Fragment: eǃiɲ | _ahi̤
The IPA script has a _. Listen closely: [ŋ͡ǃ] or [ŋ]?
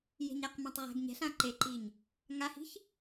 ŋ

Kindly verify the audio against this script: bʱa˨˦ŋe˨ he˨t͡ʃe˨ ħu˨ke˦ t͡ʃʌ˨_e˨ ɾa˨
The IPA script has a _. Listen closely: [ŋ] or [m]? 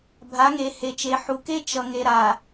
ŋ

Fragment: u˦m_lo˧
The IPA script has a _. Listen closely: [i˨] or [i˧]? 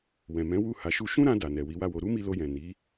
i˧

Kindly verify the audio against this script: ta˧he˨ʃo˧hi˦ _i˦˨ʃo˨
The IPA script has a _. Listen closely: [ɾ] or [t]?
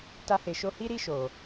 ɾ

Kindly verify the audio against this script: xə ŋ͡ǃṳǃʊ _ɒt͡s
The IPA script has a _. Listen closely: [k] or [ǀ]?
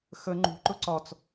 ǀ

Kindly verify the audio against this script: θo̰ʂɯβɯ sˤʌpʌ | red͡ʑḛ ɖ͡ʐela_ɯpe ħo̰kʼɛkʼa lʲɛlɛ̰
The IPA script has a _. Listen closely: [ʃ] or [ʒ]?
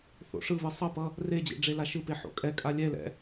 ʃ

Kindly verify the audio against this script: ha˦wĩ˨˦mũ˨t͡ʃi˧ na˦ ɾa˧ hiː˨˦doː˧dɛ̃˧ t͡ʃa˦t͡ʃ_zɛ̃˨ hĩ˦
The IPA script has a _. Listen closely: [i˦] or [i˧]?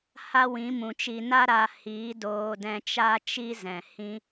i˦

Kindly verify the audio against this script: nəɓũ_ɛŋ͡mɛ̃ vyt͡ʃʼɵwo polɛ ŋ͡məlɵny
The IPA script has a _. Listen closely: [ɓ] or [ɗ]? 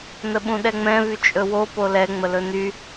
ɗ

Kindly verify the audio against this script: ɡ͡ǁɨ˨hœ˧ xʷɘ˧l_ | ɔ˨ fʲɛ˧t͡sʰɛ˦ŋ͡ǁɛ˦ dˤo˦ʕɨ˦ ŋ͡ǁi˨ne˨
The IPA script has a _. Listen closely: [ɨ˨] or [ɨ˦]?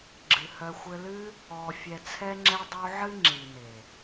ɨ˦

